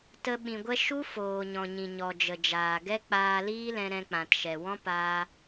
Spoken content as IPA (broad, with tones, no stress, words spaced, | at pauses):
tə˧ ɓĩ˨ɡʷɛ˧ ʃu˦foː˨ ɲɔ̃˨ɲĩ˨ ɲɔ˨d͡ʒə˨d͡ʒaː˨ ɡɛ˦k͡paː˧liː˦lɛ̃˧ ɾɛ̃˧k͡pã˨tʃɛ˨ wɔ̃˦paː˧